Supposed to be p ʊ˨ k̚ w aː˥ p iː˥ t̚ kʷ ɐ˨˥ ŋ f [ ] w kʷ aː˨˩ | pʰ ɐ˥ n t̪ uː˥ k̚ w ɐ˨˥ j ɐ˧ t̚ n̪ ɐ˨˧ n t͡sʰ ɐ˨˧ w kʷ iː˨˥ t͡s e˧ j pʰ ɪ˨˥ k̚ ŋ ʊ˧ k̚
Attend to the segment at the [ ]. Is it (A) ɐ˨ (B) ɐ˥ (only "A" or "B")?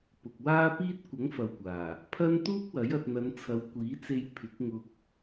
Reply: A